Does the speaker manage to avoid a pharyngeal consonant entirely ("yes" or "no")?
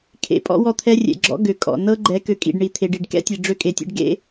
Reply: yes